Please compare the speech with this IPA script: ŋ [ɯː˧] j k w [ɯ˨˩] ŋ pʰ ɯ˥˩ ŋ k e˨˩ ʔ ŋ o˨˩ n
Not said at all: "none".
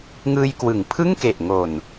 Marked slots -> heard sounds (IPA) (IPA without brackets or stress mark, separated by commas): ɯː˧, ɯ˩˦